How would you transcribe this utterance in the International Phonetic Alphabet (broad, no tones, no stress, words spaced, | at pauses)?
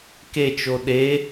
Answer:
ket͡ʃo ɗe